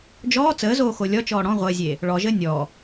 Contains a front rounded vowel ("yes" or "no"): no